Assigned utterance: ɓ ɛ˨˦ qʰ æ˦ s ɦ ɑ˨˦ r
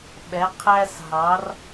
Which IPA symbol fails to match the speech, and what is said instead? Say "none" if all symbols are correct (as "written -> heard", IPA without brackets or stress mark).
none